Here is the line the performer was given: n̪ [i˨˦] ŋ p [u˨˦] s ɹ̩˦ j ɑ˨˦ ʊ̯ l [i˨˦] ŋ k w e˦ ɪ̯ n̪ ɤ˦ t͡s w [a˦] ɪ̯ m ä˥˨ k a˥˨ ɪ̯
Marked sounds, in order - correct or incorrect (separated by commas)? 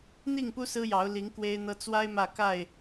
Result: incorrect, incorrect, correct, correct